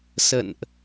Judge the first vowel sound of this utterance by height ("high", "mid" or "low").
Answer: mid